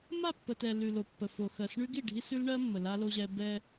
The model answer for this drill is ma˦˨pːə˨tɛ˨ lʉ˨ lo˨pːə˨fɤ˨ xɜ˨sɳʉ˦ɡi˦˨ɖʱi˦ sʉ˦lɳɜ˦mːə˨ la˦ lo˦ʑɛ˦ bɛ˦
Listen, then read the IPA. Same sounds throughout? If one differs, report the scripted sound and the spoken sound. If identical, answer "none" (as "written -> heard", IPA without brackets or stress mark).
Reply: ɤ˨ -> o˨